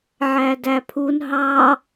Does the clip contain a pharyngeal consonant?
yes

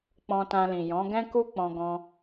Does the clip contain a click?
no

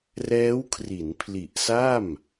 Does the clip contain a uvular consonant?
no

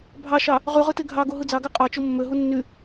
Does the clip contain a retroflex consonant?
no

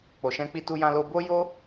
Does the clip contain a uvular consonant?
no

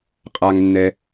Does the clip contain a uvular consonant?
yes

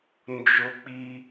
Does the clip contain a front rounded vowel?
no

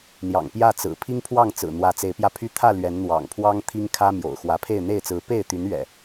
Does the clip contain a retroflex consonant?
no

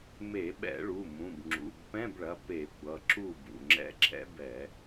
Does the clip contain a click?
yes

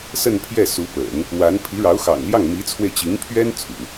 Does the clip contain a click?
no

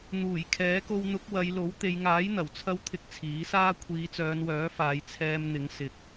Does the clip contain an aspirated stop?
yes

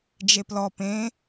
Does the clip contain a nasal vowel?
yes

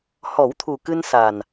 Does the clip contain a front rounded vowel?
no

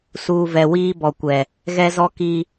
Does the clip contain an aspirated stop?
no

